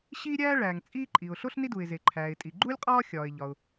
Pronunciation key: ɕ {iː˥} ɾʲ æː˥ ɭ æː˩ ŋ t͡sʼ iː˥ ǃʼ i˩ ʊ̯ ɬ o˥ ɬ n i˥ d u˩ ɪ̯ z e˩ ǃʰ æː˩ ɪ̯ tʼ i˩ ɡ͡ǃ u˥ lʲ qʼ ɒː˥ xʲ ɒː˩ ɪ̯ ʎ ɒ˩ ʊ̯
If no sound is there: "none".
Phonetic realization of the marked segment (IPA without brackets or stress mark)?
iː˥